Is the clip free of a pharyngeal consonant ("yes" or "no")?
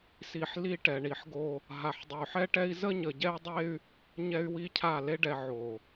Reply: no